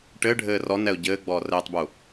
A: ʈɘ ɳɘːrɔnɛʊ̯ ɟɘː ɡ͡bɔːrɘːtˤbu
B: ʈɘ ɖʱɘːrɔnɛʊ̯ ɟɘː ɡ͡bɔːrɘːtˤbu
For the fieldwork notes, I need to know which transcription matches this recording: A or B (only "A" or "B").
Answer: B